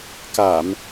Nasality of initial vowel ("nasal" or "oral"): oral